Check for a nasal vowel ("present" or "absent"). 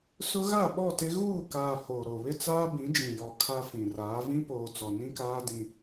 present